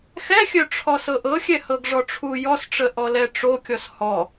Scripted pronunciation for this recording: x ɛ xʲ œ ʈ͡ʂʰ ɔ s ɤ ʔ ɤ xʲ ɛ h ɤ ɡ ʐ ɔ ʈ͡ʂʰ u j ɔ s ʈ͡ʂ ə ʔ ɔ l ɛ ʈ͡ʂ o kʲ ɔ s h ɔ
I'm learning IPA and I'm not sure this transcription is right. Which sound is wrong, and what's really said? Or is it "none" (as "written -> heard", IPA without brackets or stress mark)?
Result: none